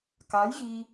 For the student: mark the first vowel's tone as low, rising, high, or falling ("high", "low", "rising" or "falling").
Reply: rising